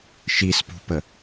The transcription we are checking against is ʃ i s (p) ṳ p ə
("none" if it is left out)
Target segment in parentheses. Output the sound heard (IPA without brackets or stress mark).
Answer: p